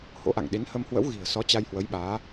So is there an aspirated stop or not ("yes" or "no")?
no